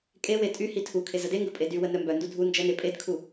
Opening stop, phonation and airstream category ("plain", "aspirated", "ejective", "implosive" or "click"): ejective